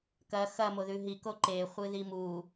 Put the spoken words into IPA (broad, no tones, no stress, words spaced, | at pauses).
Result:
kɐ xɐmoðʉ ɦiko ǃeχʷɨði mu